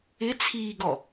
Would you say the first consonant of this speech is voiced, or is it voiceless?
voiceless